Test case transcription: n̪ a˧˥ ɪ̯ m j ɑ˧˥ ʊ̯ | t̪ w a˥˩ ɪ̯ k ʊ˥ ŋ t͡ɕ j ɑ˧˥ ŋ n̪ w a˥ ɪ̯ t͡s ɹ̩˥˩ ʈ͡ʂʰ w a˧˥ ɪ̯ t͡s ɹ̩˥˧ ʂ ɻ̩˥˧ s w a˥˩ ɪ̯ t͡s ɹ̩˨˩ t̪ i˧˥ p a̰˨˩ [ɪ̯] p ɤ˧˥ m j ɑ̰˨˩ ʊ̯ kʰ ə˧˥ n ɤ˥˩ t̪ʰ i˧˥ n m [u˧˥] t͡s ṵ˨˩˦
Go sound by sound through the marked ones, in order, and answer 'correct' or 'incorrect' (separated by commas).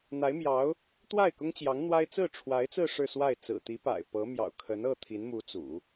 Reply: correct, correct